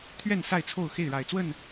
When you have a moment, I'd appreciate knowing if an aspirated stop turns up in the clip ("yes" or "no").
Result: yes